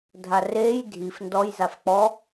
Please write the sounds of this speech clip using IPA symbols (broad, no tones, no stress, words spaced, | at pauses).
dʱareːj dʱif ndɔj zafk͡pɔ